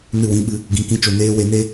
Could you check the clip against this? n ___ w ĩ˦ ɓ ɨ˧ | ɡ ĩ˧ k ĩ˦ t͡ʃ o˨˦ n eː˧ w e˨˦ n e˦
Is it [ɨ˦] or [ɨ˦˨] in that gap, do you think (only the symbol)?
ɨ˦˨